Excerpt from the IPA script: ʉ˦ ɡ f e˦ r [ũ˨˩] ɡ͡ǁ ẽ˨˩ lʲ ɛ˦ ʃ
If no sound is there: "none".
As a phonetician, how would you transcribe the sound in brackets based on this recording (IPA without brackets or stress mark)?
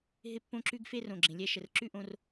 õ˨˩